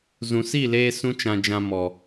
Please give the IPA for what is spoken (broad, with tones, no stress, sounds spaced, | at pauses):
z ũ˨ s i˦˨ l eː˧ s ũ˦ t͡ʃ ã˧ d͡ʒ ã˧ m ɔ˨